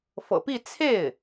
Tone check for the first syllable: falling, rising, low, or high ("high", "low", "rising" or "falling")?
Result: low